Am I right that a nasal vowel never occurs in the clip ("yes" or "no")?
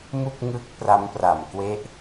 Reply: yes